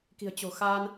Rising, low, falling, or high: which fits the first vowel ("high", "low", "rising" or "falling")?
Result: low